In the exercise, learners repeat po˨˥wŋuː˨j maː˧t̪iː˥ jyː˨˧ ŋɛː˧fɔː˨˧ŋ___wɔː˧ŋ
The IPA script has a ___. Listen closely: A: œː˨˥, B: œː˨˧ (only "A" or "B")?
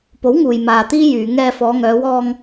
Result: B